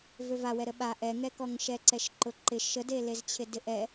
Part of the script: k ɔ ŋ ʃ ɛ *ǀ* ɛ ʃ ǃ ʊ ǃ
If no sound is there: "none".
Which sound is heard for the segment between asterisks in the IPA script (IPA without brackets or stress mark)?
ǀ